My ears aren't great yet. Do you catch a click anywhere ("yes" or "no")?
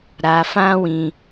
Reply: no